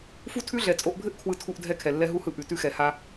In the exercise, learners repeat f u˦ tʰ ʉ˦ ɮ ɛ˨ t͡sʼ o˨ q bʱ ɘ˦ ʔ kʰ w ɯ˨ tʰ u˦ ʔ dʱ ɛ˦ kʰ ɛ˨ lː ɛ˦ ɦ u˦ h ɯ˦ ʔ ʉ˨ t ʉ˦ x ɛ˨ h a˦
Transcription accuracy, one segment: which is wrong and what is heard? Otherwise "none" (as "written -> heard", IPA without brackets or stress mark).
q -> ʔ